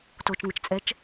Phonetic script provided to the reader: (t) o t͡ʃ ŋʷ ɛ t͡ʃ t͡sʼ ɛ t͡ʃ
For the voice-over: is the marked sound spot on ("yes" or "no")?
yes